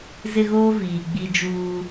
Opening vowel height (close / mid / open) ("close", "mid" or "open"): close